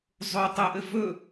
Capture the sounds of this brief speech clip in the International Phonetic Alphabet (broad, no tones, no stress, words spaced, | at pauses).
zˤo tˤəʔɘ vɵ